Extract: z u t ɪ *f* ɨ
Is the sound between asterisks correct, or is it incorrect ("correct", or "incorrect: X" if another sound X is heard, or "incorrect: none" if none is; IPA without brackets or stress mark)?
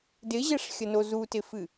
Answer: correct